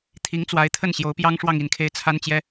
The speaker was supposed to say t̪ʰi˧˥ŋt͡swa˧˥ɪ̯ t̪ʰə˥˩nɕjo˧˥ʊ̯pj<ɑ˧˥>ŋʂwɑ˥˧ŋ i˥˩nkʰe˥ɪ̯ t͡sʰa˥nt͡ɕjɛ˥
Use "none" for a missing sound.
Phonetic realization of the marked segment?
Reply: ɑ˥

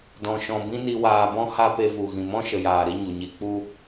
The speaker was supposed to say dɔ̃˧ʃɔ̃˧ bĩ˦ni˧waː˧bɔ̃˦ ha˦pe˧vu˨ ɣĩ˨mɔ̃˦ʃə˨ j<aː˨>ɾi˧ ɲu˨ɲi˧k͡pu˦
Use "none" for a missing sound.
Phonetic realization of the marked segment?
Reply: aː˨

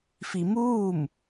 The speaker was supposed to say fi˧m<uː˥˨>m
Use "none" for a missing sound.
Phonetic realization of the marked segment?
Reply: uː˥˨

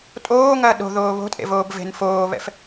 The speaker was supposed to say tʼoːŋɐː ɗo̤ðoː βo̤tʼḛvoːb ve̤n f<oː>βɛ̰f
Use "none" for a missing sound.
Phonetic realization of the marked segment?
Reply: oː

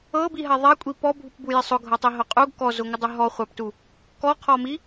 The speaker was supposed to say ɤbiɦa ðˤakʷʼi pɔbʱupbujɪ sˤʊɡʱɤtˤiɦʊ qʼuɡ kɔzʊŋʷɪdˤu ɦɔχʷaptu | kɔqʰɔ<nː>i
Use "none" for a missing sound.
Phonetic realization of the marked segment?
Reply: m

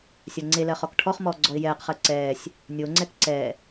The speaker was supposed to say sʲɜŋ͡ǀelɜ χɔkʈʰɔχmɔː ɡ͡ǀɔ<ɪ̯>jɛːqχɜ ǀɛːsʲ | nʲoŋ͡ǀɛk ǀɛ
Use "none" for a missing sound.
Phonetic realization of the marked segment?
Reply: ɪ̯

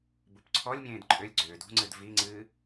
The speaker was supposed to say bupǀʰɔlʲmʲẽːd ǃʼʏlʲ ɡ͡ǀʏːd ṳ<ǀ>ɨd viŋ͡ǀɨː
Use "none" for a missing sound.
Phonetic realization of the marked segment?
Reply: ŋ͡ǀ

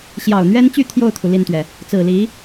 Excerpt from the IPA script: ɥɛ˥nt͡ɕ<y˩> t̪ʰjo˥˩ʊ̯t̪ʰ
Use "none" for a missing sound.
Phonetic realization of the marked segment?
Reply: y˥˧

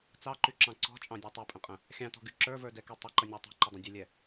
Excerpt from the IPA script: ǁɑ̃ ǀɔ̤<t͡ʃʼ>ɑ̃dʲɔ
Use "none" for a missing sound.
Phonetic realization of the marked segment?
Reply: t͡ʃʼ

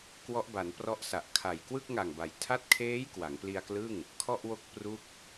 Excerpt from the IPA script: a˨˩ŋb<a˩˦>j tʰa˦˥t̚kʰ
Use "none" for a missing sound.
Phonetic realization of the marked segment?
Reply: a˩˦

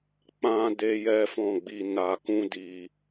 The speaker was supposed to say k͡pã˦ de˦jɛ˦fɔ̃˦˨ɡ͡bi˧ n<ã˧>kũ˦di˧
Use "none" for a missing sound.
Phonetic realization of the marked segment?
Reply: a˧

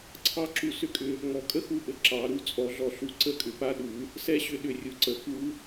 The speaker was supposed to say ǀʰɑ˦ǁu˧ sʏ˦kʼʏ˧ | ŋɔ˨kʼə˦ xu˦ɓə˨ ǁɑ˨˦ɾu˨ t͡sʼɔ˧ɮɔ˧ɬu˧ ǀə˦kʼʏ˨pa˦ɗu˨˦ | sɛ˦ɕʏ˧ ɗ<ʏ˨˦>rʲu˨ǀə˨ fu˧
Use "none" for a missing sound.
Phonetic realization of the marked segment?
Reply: ʏ˨˦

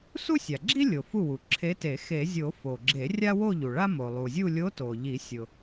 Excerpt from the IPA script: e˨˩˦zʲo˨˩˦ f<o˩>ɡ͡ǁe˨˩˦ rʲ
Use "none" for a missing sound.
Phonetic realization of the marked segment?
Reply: o˩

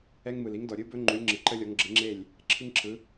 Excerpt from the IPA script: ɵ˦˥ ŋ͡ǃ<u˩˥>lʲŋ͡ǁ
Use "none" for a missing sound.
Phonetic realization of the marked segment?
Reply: u˩˥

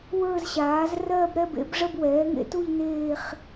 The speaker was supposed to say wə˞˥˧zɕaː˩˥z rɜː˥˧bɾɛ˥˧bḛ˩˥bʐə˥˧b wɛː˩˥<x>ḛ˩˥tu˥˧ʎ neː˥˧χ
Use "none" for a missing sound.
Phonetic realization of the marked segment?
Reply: ŋ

